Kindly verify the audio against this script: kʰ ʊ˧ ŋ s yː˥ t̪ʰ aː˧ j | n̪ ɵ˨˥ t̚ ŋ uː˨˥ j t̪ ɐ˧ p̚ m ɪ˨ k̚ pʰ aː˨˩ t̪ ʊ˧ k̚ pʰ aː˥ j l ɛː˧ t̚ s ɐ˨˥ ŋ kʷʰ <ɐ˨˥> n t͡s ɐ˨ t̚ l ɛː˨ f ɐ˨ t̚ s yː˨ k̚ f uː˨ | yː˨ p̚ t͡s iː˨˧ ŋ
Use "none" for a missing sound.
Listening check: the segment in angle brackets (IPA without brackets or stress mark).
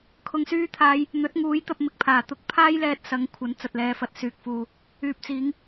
ɐ˨˥